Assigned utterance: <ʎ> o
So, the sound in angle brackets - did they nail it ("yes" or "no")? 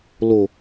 no